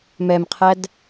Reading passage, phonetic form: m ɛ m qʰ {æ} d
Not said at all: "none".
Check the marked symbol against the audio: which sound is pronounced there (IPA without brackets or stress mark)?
æ